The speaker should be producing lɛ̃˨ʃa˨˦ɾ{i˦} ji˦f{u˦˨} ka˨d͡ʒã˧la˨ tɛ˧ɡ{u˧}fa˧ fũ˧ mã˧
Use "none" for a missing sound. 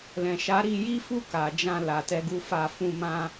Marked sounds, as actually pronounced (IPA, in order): i˧, u˦˨, u˧

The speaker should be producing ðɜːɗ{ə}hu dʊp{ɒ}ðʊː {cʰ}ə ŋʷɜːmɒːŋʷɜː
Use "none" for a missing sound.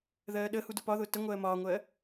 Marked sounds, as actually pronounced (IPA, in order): ə, ɒ, t

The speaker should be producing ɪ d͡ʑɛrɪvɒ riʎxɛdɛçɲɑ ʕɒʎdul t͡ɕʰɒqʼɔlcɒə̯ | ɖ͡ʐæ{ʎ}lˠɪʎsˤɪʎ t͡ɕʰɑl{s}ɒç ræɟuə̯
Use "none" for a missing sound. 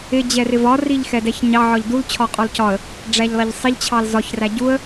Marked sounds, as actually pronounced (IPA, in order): ʎ, z

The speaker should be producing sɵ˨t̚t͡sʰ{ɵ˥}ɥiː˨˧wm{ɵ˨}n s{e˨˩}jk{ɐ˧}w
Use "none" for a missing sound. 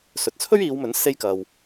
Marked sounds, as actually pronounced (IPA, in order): ɵ˥, ɵ˨˥, e˥, ɐ˧

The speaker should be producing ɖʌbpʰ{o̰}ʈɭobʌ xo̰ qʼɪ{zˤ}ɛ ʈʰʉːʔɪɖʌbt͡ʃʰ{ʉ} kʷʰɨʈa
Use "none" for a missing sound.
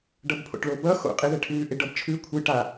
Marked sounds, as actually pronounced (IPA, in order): o̰, ð, ʉ

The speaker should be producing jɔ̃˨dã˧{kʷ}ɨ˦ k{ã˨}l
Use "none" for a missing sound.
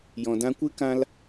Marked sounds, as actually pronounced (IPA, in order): kʷ, ã˦

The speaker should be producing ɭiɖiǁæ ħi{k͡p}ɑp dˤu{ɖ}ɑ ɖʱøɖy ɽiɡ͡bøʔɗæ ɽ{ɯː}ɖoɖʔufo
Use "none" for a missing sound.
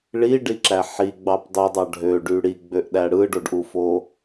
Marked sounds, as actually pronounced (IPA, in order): ɡ͡b, dˤ, ɯ

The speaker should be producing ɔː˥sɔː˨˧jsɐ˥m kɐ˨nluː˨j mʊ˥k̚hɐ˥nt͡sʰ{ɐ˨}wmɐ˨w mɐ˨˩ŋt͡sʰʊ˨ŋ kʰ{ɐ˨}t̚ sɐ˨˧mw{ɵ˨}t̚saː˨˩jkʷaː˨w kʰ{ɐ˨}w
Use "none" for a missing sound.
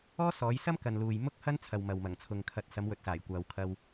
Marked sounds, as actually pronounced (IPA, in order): ɐ˨, ɐ˨, ɵ˨, ɐ˧

